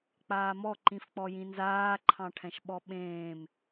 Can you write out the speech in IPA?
k͡p aː m ɔ ǃ ĩ f k͡p ɔ j ĩ n z aː ǃʰ ɑ̃ ʈʰ ɛ̃ ʃ ɓ ɔ ɓ ẽː m

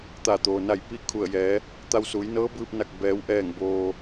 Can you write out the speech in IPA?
t̪ a˧˩ t̪ oː˩ n a˧˩ j p i˥˨ kʰ u˧˩ ə̯ j ɛː˩˧ | t̪ a˧ w s u˩˧ j n ɤː˧˥ b ɯː˧ p̚ n a˧˩ k̚ b ɛː˩˧ w ʔ ɛː˧˩ ŋ b oː˩

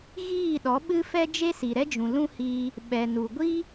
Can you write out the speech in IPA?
ɣ iː˦˨ ɗ ɔ˨˦ ɓ ɨ˦ f ɛ˦ d͡ʒ e˦ s i˨ ɾ ɛ˦ d͡ʒ ũ˨ l ũ˦ h iː˧ | ɓ ɛ˨ n u˨ ɡʷ i˦

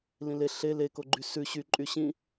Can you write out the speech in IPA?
l ĩ l e ɬ e l e k o ɡ͡ǃ y s ʉ ɕ y ǃʼ y ɕ ĩ

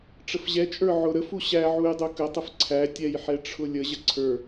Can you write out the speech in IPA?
ʈ͡ʂ ə f ʑ ɛ t͡ʃʼ ə˞ ʕ ʊ ɾ ə f u ɕ æ ʕ u j dˤ u k ə tˤ ə f ǀʰ æ tʲ ɛ j ħ ɛ ʈ͡ʂʰ ʊ lʲ ə ʑ ə ǀʰ ə˞

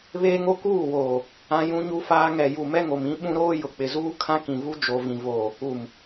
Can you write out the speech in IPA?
β eː˦ ŋ o˦ k uː˦˨ w oː˨ | ã˦ j ũ˦ ɲ u˦ f aː˦ ŋ ɛ˨ j u˨ m ɛ˦ ŋ o˨ m ĩ˦ ɓ ũ˦ ɾ oː˦ j ʊ˨ k͡p ɪ˨ z uː˦ kʰ ã˦ k ĩ˨ v u˦ d͡ʒ o˨ v ĩ˨ v oː˨ | u˨ m

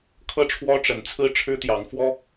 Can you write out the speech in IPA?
kʰ ɤ˦ ʈ͡ʂʰ w ɔ˦ ʈ͡ʂ ə˨˦ n t͡sʰ ɹ̩˦ ʈ͡ʂʰ ɻ̩˦ t̪ j ɑ˨˦ ŋ f w ɔ˦

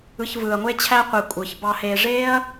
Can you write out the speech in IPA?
ɯ˨ ç v ɯː˩ ɐ̯ ŋʷ e˦ t͡ɕʰ æ˦ qʷ e˨ kʷʼ ɯː˩ ç b ɑ˨ h eː˨ ʐ eː˥ ɐ̯

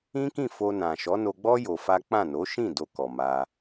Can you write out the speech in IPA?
ĩ˦ k ĩ˦˨ f o˧ n ã˨ ʃ ɔ˨˦ n o˧ ɡ͡b ɔ˦ j o˧ f a˦ k͡p ã˦˨ n o˨˦ ʃ ĩ˦˨ d o˧ k ɔ˨ m a˧

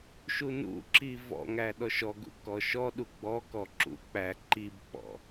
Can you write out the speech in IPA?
ʃ u n ṵ ǁ i v ɔ̰ ŋ æ ɗ ɔ ʃ ɔ ɡ ṵ k ɔ ʃ ɔ ɗ u ɡ͡b ɔ k ɔ ǁ ṵ k͡p æ ǃ i b k͡p ɔ̰

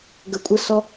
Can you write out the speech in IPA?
ɡ ə kʷʼ ə s ɔ

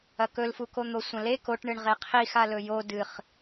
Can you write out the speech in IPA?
ɐ k ɵ l f u k o n̪ o sʷ ɐ̃ l e k o ʈ ɳ ɨ ɳ ʁ e qʰ i x a l ɵ j o d ɨ χ

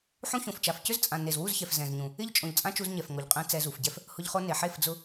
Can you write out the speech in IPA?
ħ ũ˦ ç õ˨ f t͡ʃ a˨ f c ʏ˦ z t͡sʼ ã˨ n e˨ z w u˦˨ z ç ɛ˨ f z ɛ̃˨ z ɲ ũ˨ | ɪ˦ ʎ t͡ʃʼ õ˨ ʎ t͡sʼ ã˦ t͡ʃ u˧ z ɲ ɛ˨ f ŋ o˨ ʎ qʼ ɛ̃˧ t͡s ɛ˧ z u˨ f ɟ ɛ˦ f | h ʊ˧ ʎ χ o˧ n e˨ ħ e˦˨ f d͡z ʊ˦

